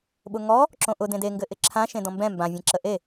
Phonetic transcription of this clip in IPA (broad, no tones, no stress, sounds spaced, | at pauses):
ɓ ʊ ŋ ɔ | ǁ õ ʔ ʊ d ẽ d e ŋ ɡ ɘ ʔ ɪ ǁʰ ã ʃ ẽ d ɔ̃ m b ɛ̃ m b ã vʲ ẽ ǁ ə ʔ e